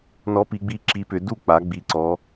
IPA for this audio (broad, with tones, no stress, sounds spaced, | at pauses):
n ɔ˨˥ p i˩˧ ɡ͡b i˨˥ ǁ i˨˥ p ʏ˩˧ d u˥˩ k͡p a˩˧ ɡ͡b i˩˧ ǀ ɔ˩˧